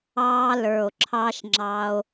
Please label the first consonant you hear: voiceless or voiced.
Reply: voiced